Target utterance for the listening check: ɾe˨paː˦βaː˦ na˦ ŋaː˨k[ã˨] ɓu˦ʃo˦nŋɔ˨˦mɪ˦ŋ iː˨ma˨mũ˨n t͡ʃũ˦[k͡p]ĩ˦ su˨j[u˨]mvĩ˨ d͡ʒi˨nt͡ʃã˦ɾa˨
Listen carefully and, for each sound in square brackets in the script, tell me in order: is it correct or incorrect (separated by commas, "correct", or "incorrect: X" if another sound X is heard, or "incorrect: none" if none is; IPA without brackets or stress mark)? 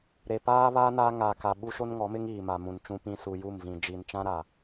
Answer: incorrect: a˨, incorrect: p, incorrect: u˦˨